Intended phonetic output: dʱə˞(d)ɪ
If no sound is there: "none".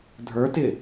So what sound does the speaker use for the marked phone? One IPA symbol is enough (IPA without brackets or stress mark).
t